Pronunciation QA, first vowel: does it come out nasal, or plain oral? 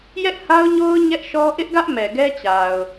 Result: oral